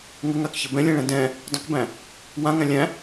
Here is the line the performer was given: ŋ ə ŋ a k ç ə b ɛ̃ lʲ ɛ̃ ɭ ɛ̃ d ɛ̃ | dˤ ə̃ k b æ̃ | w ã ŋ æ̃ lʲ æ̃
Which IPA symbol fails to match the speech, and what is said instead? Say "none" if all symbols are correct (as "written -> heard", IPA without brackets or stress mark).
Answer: none